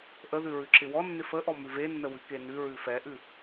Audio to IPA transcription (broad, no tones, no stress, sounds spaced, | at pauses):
ʔ ə ð ʉ ɹ ʉ ǁ ɪ w ɔ nː ɪ f ə ʔ ɔ m ʉ v e nː ə w ʉ k e n ʉ ɹ ʉ f ɛ ʔ ʉ